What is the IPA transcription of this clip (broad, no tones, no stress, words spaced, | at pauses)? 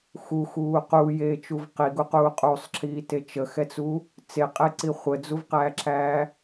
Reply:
xuxuː quːjeːt͡ʃuv qiɡuquː qʼusˤǁʰiːte t͡ʃəxɛt͡su | t͡seqʼeǀi χʷəd͡zuvqæːǁʰæː